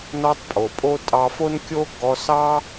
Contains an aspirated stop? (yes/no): no